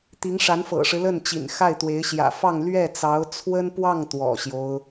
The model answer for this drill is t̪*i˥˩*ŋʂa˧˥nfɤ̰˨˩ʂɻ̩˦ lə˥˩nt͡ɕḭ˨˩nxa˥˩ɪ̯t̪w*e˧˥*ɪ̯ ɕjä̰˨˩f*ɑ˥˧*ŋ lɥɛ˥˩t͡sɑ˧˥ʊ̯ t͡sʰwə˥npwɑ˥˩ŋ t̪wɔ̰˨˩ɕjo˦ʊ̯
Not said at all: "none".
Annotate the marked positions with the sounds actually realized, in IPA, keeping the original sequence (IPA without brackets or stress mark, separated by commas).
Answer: i˧˥, e˧˥, ɑ˥˧